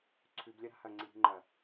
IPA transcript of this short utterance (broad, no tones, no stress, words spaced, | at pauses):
ǀʰʉb lʲɐɾa̤hɐ ŋ͡ǀiɾi̤ŋ͡ǃɐ